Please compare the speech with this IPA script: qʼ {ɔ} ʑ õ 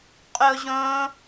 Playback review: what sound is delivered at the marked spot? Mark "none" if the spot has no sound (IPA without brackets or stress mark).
o